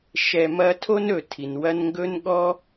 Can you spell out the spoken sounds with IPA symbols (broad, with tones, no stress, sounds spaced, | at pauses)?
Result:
ʃ ɛ˨ m ɐ˦ tʰ o˥ n ɵ˩ tʰ i˩ n w ɐ˦ n ŋ ɡ ɵ˥ n ɠ ɔ˥